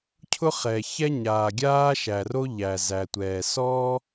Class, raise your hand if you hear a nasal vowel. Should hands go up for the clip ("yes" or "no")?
no